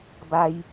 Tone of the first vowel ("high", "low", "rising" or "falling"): high